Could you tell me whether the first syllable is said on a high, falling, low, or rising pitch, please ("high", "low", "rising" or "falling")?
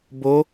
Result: rising